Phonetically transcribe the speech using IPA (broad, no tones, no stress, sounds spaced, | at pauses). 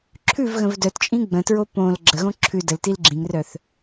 ǁʰ ʉ v ɣ ə̃ v d œ t t͡ʃʼ ĩ ɡ͡b ə̃ t ɹ o p õ l ɡ͡ǁ ə ɣ õ ǁʰ ʉ d ə l t i l ɡ͡ǁ ĩ ŋ r œ θ